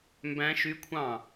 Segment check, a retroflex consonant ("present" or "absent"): absent